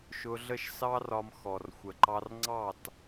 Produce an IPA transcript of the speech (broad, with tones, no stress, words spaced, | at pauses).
ʃʊ˧ɮə˥˩ʃsɑ˥rɒ˧m xɔ˩rxʷə˩ǃɑ˧rŋ͡ǀɑ˥˩t